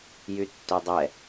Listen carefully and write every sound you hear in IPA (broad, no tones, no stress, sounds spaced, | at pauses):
j y tː ø dˤ ɛ